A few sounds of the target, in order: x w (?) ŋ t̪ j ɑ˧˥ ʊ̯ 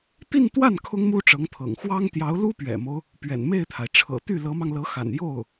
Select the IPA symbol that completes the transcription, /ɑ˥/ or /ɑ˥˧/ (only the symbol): ɑ˥